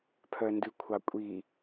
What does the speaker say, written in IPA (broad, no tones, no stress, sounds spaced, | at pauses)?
pʰ œ n d ʉ kʷʰ ɑ kʷʼ i